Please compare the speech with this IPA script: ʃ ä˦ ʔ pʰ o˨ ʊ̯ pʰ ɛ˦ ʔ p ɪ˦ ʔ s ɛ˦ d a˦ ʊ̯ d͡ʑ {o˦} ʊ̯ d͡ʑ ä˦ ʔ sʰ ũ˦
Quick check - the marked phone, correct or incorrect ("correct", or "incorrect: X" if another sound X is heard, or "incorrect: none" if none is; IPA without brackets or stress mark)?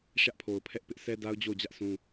incorrect: o˦˨